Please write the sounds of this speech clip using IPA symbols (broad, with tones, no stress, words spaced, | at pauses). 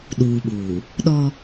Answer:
ɗuː˨ɓuː˨ | ɗɔ˦